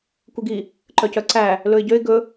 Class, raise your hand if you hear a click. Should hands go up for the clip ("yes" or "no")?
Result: yes